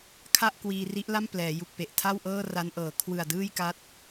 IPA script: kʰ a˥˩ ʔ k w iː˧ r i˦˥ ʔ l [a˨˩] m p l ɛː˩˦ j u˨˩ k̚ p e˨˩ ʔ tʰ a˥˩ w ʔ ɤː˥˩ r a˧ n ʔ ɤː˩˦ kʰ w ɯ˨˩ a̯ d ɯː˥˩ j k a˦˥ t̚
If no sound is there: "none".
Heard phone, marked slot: a˥˩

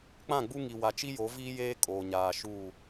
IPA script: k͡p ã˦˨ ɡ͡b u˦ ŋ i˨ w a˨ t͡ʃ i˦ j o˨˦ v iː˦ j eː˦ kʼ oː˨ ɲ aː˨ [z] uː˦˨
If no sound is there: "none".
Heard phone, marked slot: ʃ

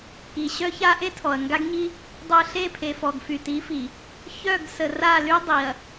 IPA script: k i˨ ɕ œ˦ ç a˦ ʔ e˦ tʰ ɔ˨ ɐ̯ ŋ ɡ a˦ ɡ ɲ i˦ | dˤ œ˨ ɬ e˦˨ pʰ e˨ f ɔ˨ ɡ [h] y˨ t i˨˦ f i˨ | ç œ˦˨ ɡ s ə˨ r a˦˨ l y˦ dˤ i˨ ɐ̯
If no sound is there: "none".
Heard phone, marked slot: f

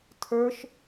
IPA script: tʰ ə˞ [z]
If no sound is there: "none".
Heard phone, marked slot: ʃ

